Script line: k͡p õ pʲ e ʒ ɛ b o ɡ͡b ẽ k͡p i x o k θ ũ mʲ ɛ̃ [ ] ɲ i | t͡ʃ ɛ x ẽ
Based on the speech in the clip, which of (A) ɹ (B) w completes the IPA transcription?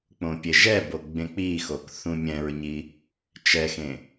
A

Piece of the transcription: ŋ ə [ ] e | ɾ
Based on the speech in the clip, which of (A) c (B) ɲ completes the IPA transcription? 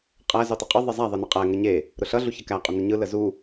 B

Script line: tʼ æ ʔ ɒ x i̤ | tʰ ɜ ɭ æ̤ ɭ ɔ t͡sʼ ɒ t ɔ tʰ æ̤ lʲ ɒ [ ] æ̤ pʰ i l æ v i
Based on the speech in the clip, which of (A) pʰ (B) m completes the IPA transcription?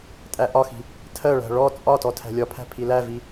A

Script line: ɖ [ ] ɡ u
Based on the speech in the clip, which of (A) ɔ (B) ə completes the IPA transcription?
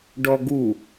A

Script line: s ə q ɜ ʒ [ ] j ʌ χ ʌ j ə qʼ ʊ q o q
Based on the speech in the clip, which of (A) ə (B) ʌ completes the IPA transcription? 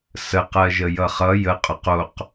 A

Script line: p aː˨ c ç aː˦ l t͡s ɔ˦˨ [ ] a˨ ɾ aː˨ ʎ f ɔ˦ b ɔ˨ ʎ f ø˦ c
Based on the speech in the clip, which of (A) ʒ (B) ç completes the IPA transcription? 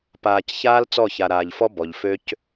B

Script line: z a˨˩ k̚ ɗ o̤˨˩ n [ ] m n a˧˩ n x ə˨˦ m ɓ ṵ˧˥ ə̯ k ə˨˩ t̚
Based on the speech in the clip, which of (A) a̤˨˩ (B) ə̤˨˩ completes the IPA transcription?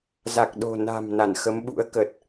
A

